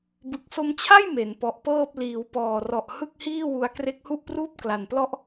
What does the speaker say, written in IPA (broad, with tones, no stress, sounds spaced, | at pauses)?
b ɯ˨˩ k̚ s o˧ m t͡ɕʰ a˥˩ j m e˩˦ n p ɔ˨˩ ʔ p ɤː˥˩ p̚ l iː˩˦ w p ɔː˨˩ r ɔ˨˩ ʔ h ɯ˥˩ k̚ h iː˥˩ w u˦˥ a̯ k r e˦˥ k̚ h u˥˩ ʔ p r uː˥˩ p̚ k l a˨˩ n p l ɔ˥˩ ʔ